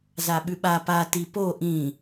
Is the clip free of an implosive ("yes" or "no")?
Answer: no